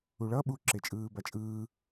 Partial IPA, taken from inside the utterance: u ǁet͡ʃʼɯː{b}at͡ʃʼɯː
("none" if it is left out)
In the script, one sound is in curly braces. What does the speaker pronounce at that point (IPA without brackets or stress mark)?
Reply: b